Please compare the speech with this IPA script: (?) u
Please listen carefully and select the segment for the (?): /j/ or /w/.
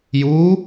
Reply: j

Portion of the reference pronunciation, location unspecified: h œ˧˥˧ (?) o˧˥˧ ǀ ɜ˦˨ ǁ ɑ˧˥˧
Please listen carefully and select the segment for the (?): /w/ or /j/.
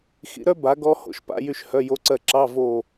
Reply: j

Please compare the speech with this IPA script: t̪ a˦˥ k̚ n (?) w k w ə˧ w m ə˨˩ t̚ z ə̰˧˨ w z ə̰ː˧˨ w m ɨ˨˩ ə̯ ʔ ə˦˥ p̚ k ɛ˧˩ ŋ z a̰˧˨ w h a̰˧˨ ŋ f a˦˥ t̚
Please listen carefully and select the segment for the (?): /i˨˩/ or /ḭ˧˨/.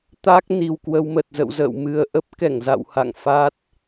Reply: i˨˩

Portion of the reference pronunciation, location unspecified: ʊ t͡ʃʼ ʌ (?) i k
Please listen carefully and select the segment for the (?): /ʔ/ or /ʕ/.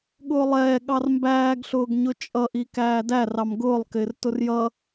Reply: ʔ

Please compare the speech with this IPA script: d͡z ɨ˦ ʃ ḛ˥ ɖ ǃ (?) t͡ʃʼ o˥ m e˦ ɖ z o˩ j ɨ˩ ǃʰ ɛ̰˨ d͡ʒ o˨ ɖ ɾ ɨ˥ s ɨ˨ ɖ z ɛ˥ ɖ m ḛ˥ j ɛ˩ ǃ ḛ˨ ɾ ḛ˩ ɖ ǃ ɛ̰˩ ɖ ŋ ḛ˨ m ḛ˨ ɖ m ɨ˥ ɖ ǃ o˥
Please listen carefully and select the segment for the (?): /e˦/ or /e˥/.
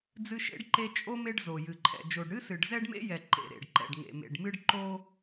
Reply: e˦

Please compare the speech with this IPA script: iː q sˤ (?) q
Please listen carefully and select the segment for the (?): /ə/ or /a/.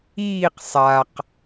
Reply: a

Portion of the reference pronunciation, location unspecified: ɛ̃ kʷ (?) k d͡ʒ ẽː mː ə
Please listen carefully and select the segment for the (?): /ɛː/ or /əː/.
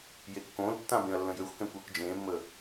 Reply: əː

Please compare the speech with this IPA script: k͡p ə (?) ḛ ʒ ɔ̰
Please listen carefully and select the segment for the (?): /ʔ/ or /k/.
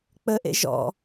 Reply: ʔ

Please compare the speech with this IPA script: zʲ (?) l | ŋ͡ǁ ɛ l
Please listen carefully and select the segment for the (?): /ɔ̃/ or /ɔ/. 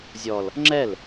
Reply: ɔ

